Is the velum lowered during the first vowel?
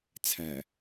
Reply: no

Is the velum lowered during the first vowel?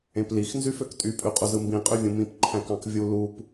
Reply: yes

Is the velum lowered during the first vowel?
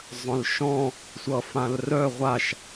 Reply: yes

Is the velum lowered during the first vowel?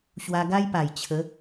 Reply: no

